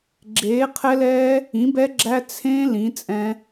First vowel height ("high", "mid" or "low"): mid